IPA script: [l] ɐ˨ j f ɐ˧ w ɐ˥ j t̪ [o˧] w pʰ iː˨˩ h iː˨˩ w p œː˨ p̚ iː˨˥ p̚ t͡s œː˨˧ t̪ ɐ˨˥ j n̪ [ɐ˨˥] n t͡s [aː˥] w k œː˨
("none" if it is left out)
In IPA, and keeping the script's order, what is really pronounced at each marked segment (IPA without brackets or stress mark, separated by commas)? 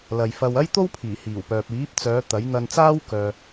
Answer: l, o˥, ɐ˧, aː˥